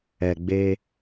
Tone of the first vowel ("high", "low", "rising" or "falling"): low